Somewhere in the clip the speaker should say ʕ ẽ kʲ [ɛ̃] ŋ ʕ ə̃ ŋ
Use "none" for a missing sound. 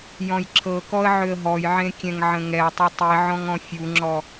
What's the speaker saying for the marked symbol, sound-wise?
ɛ̃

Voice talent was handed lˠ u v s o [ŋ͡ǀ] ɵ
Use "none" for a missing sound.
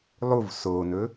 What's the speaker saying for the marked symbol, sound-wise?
n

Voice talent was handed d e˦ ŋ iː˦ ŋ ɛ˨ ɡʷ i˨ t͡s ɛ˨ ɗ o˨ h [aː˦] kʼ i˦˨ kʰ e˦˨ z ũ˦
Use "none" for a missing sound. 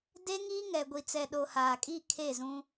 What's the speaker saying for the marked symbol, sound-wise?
aː˨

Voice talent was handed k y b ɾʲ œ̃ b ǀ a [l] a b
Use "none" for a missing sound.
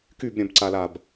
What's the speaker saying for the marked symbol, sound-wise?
l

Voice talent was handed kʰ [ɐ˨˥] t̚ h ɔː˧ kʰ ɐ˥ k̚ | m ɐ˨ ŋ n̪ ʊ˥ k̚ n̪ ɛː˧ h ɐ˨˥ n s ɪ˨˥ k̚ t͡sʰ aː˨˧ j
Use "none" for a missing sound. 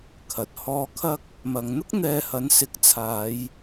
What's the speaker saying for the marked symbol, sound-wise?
ɐ˨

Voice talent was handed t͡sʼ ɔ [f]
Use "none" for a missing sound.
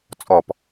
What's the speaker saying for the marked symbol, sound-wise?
p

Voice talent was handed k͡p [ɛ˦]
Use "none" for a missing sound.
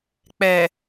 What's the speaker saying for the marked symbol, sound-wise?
ɛ˨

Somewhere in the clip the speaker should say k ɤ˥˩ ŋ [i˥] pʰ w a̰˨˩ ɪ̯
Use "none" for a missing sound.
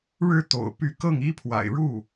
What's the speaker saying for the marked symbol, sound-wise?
i˥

